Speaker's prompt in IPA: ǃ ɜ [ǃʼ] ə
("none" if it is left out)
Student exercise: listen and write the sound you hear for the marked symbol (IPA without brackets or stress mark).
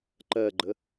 ɡ͡ǃ